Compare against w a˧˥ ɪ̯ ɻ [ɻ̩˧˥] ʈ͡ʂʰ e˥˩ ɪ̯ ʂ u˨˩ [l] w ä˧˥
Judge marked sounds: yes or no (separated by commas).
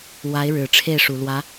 no, yes